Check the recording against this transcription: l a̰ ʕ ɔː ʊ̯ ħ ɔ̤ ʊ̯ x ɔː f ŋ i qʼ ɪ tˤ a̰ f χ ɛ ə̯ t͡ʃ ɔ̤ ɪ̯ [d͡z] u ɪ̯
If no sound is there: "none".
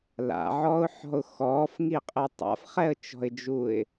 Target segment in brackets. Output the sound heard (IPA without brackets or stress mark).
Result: d͡ʒ